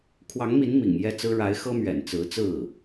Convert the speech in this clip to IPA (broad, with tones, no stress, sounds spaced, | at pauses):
kʰ w ɑ˧˥ ŋ m i˧˥ n m ḭ˨˩ ŋ j ɛ˥˩ t͡s ɹ̩˥ ɻ a˧˥ ɪ̯ x ɤ˥ m ɥ ɛ̰˨˩ n t͡s ɹ̩˧˥ t͡s ɹ̩˥˩